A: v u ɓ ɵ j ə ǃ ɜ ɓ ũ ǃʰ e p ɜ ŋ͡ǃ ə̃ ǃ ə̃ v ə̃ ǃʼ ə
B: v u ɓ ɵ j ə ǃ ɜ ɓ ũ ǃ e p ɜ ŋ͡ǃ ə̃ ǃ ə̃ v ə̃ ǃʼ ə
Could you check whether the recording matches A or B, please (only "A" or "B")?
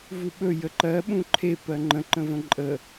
A